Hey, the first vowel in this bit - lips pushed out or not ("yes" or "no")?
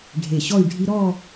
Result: no